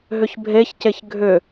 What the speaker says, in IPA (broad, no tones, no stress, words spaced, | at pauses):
ɦʏçbʱeçceç ɡʱʏ